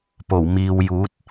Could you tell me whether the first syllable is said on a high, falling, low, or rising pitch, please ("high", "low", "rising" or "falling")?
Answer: low